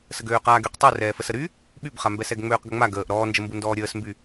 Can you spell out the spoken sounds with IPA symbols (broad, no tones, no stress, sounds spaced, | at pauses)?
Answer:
s ə ɡ øː q aː ɡ y q tˤ u r ɛː f ə s ə ɾ y | ɓ y b χ a m b ɛ s ɛ ɡ ŋ͡m øː q ɡ ə ŋ͡m a ɡ əː ʔ ɾ ɔː n d͡ʒ ə m b u n d ɔː ɾʲ əː s m b y